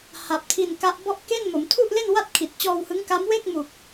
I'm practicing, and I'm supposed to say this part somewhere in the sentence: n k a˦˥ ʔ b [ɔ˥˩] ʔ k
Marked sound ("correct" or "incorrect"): correct